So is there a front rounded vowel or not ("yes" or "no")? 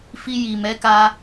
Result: no